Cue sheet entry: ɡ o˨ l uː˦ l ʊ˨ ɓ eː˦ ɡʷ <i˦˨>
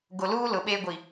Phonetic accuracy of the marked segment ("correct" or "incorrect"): incorrect